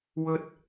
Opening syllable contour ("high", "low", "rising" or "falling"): high